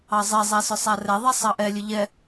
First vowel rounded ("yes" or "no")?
no